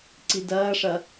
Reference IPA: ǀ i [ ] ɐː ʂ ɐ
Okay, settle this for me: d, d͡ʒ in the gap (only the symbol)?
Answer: d